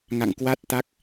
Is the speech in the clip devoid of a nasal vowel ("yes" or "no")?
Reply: yes